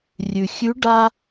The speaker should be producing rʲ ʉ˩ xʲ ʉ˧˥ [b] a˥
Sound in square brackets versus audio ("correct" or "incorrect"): incorrect